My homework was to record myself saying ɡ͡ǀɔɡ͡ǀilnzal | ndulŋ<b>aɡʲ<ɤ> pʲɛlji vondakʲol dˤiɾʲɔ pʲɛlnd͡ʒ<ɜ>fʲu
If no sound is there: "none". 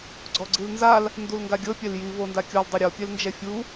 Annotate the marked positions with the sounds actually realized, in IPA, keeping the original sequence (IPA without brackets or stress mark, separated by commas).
ɡ, ɤ, ɛ